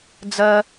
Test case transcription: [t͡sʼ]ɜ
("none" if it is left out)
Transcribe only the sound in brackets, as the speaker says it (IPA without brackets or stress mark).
d͡z